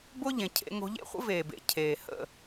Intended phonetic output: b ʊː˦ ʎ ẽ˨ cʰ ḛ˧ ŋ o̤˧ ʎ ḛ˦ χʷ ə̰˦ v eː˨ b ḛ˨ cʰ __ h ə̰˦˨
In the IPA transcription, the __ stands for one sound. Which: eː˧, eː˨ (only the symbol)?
eː˨